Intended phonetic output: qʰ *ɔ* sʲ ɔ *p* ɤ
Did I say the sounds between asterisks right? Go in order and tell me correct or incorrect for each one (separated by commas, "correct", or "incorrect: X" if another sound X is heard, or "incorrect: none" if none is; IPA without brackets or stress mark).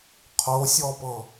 incorrect: o, correct